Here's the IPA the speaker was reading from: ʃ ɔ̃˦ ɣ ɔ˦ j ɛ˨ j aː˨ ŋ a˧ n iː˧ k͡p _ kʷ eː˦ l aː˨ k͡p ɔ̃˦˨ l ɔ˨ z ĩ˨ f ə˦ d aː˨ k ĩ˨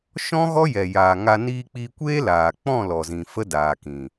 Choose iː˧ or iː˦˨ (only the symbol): iː˧